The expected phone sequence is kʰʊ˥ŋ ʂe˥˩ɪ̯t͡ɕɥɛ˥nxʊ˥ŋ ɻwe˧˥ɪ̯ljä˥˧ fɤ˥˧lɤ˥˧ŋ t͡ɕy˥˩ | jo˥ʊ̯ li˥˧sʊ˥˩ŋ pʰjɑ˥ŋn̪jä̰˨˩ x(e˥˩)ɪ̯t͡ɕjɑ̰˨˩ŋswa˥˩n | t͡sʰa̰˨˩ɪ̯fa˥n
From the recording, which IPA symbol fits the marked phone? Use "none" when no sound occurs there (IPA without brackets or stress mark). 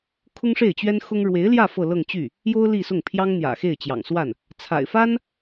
e˥˩